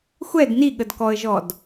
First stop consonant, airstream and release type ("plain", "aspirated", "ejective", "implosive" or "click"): plain